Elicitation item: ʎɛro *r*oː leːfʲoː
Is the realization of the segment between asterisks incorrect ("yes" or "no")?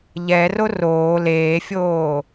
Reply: no